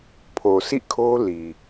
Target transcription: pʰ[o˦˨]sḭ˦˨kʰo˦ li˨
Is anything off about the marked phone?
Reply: yes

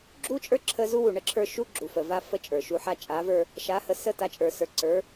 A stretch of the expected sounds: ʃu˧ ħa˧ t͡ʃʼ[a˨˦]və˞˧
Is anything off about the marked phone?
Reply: no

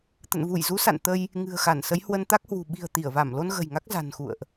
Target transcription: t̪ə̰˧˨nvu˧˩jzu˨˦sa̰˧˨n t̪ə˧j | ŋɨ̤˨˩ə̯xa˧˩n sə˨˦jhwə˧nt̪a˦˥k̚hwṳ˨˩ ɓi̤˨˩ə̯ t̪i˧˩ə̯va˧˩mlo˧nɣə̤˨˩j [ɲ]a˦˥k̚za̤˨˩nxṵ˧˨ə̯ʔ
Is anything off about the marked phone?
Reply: yes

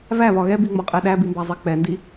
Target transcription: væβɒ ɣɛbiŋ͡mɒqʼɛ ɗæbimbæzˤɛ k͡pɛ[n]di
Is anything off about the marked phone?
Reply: no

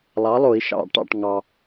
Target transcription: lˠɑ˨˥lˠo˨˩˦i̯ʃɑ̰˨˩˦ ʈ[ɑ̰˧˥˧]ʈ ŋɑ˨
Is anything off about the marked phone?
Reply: yes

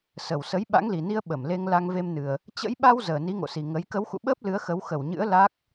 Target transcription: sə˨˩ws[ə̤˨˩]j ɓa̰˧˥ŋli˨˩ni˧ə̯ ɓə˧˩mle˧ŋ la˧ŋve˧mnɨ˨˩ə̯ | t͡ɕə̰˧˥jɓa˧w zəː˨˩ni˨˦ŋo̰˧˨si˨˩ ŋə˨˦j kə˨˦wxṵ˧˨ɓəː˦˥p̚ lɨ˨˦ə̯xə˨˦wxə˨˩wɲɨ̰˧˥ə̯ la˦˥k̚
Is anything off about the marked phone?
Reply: yes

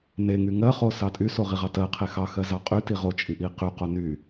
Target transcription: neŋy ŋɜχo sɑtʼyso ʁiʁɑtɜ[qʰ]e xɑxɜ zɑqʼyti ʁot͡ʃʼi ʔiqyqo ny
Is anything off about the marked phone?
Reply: no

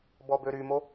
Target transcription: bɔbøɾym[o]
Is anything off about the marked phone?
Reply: no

